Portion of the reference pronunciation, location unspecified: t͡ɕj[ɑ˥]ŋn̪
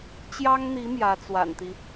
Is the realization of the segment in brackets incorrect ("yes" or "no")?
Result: no